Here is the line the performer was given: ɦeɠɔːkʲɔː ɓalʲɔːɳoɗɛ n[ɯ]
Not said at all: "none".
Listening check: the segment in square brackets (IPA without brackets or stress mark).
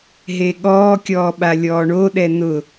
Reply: ʊ